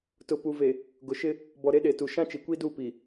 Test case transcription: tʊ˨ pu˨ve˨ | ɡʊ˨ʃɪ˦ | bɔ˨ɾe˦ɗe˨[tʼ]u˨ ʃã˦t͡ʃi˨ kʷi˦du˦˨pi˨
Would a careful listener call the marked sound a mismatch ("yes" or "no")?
yes